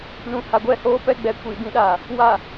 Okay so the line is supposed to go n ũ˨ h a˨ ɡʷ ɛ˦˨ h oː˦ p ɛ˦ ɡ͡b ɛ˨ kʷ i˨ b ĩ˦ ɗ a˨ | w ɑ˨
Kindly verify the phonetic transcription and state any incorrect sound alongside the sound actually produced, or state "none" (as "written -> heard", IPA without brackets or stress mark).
ɑ˨ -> a˨